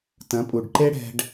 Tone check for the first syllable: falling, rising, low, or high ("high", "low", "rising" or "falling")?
rising